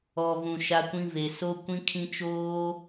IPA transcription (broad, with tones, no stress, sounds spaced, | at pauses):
ɔ˨ v ũ˨ ʃ a˦ kʷ ĩ˦ v e˨ s o˦ kʷ ĩ˦ kʰ ĩ˦ t͡ʃ oː˦